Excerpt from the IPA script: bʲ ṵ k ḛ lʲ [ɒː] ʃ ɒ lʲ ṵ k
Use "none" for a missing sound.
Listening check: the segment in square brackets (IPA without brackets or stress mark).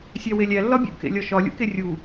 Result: ɒ